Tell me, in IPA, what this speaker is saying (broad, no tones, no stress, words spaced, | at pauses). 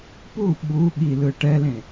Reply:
pu ɓu ɠi lɯʈɛlẽ